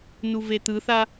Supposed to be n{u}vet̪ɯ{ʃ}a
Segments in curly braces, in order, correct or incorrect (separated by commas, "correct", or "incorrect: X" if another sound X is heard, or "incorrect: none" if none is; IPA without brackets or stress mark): correct, incorrect: θ